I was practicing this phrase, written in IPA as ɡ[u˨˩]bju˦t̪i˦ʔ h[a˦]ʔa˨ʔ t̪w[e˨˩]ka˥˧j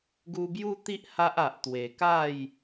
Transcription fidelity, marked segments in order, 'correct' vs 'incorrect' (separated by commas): incorrect, correct, correct